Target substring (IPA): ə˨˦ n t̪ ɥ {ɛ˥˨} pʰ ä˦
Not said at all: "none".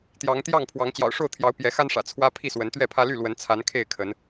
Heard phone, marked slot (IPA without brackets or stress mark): ɛ˥˨